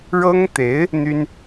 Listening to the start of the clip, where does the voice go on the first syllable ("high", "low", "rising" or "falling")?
high